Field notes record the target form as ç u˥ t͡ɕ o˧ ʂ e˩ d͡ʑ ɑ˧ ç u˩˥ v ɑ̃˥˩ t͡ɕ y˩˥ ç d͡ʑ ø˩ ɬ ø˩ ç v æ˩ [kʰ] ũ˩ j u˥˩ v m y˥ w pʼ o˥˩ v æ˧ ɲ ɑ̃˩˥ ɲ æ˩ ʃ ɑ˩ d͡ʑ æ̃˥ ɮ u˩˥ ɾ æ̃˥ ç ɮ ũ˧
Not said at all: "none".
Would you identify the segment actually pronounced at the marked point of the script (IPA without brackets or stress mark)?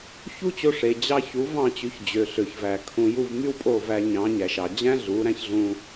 kʰ